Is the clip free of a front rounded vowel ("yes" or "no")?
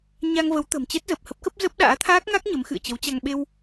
yes